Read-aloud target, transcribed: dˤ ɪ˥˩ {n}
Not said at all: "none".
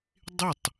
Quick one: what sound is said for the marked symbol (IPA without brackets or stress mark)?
tˤ